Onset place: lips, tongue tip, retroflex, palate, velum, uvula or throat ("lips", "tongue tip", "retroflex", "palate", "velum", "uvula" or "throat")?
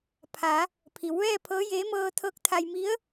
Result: lips